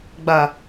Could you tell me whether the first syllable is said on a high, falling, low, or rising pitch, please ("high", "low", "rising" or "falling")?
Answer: low